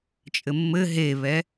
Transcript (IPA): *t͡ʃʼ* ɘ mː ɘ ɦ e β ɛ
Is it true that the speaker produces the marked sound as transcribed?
yes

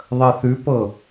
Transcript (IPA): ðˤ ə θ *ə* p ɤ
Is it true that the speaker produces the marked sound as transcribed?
no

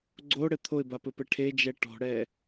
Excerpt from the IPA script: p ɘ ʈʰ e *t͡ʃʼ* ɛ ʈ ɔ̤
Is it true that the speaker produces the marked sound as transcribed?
no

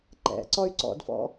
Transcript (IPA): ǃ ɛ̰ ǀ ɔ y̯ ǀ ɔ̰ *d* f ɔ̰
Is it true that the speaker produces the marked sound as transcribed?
yes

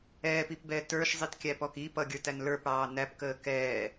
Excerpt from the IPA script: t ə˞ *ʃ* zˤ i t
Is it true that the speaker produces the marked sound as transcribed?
yes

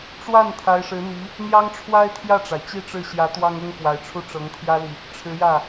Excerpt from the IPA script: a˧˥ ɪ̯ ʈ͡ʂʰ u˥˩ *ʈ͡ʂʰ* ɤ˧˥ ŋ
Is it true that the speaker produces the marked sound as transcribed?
no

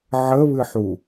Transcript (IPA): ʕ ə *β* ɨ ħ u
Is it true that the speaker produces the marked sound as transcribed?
yes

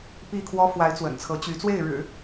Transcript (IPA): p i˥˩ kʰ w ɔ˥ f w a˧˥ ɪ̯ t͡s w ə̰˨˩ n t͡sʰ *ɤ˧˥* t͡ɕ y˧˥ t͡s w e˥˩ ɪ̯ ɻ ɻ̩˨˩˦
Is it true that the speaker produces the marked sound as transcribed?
yes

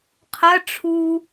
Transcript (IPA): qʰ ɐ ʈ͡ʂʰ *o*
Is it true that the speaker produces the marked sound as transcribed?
no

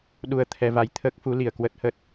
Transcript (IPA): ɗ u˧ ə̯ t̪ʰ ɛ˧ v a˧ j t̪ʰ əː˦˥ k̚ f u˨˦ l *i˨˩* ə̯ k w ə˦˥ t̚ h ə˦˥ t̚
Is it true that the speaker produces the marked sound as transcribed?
yes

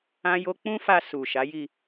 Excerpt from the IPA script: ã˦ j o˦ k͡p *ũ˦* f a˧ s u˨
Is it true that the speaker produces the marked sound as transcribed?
yes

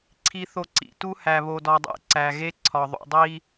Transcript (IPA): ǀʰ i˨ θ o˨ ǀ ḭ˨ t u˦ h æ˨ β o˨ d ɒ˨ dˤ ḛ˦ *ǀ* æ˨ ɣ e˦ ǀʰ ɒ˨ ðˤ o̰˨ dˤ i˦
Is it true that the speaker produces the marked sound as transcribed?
yes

